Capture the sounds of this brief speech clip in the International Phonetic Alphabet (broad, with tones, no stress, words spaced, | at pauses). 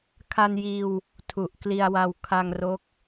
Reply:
kʰa˧njiː˧w | tʰu˨˩ʔkli˧a̯wa˧w kʰa˧ŋro˦˥k̚